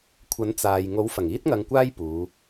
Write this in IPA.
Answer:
kʷʰ ɐ˨˥ n t͡s aː˨ j ŋ o˨˥ w f ɐ˨˩ ŋ iː˥ t̚ ŋ ɐ˧ ŋ kʷ aː˥ j p uː˨˧

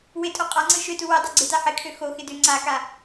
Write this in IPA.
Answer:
w ɪ tʼ o qʼ a ŋ͡ǀ ɯ ʃ ø t u w e dˤ o ɡ͡ǀ ɪ t a ħ ɪ kʰ ø x o x ɪ d ø ŋ͡ǀ a k a

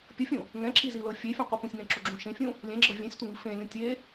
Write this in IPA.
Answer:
pʲ ɤ fʲ ũ | ŋ ɛ̃ ǁ i z i l ɤ fʲ e fʲ ũ qʷ i p ũ sʲ ŋ ɛ̃ ǁ u ɡ͡ǁ ũ ʃ ẽ fʲ ũ | lʲ ɛ̃ ɡ͡ǁ ɤ vʲ ɛ̃ sʲ tʷ ɛ ŋ i f ẽ lʲ ũ tʲ e

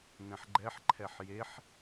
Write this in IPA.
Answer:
n ɛ̃ ħ ɡ͡ǃ ɛ ħ ǃʰ ɛ ħ j e ħ

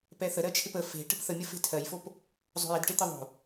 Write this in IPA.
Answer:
p ɛ θ ə ɾ ɜ t͡ʃʰ ɪ p ə f e̤ ʈ ə̤ p θ ə mʲ ə f e̤ tʰ ɜ j f o p | zˤ o̤ j ɪ d ʈ ɪ t̪ ɪ ðˤ o̤

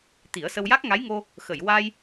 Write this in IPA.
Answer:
t̪ i˨˩˦ ə̯ s ə˧ w j a˦˥ k̚ ŋ a˧˥ j ŋ o˧ | x ə˨˩˨ j w a˧ j

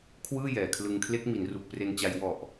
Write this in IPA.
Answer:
kʰ w ɯː˥˩ j ɛː˨˩ kʰ l ɯ˧ ŋ kʰ l e˦˥ k̚ m i˩˦ n r u˨˩ k̚ p r e˧ n t͡ɕ a˧ j w ɔ˨˩ ʔ

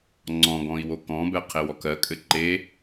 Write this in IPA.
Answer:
ŋ͡ǀ ɔ̃ ɡ ɔ̃ i̯ w o k ɔ̃ b ɛ qʰ e w ɔ k ɜ kʼ ɘ ǃ e

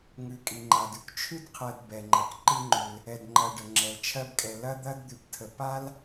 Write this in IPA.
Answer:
ŋ ʉ˨ kʼ i˩ ŋ͡ǃ a˩ d ʉ˦ k t͡ʃʰ ʉ˥ d qʰ ɜ˨ d b ɛ˩ ŋ͡ǃ ɐ˩ k ǃ i˦ ŋ͡ǃ ʉ˩ l | ɛ˨ d ŋ͡ǃ ɐ˨ ɖ ə˩ ŋ͡ǁ ɛ˩ l t͡ʃʰ ɜ˦ b kʼ ɛ˨ l ɐ˥ d̪ ɐ˥ d d̪ ʉ˨ p tʰ ə˨ p a˥ l

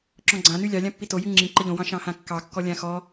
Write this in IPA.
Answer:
ǁ ɔ̃ ɡ͡ǀ ã n y lʲ ɑ lʲ ã pː i t o j y ŋ͡ǁ ĩ ǃ ə ʎ õ w ɑ̃ ʃ ɑ̃ h ã kː ɑ kː ɔ lʲ ã x ɔ

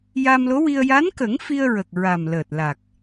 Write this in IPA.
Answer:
j a˧ m l o˧˥ w i˧ ə̯ j a˧˥ n k ə˨˩˦ ŋ f i˧ ə̯ ɹ ə˨˩ k̚ ɹ a˨˩ m l əː˨˩ t̚ l a˨˩ k̚

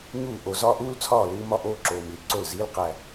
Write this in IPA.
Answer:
ɲ uː˦˨ ʔ o˨ z ɒː˦ ʔ uː˦ l t͡sʰ ɒː˦˨ l uː˦ m ɒ˦ ʔ oː˦ ǁ oː˨ m i˨ l ǀ o˦˨ l z iː˦ l q æ˦

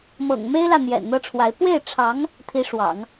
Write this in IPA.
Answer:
m ɤ̰˨˩ ŋ m e˥ ɪ̯ l ä˥˩ n̪ j ɛ̰˨˩ n n̪ ɤ˥ ʈ͡ʂʰ w a˧˥ ɪ̯ p w e˥˩ ɪ̯ ʈ͡ʂʰ ɑ˧˥ ŋ | t̪ʰ i˧˥ ʂ w ɑ̰˨˩˦ ŋ

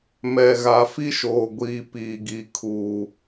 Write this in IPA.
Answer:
m ɛ˨ ɣ a˨ f i˦ ʃ oː˨ ɡʷ iː˨ p iː˨ ɡ i˨ kʰ uː˨

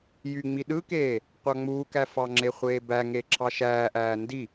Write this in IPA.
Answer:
j y ŋ͡m i ɗ ɯ k eː | qʷ ɑ ŋ͡m uː k æ f ɑ ŋ͡ǁ e χʷ eː b æ ŋ e ǁʰ ɑ ʃ æː ʔ æː n d i

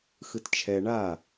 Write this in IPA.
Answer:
x ɯ t t͡ʃʰ ɛ ɳ a

